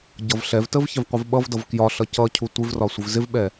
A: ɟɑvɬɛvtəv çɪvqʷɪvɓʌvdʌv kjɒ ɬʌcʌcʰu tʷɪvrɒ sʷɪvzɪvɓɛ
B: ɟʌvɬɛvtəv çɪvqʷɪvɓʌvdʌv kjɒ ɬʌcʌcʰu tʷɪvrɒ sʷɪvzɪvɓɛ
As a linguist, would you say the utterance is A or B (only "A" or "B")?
B